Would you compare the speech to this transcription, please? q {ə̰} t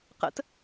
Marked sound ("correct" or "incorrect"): correct